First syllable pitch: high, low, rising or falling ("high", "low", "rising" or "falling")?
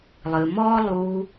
low